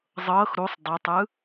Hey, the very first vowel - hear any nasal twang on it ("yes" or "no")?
no